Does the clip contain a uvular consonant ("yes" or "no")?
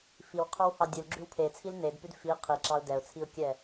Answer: yes